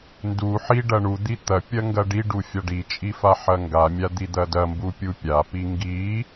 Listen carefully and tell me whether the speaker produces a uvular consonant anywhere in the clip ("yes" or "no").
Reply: no